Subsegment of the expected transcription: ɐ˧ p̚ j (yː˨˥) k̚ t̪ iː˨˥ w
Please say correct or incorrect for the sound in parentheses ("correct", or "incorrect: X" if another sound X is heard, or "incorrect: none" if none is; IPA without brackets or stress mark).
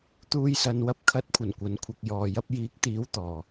incorrect: iː˨˥